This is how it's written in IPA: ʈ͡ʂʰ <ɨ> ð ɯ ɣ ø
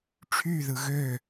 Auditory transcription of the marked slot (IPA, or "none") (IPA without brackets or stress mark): y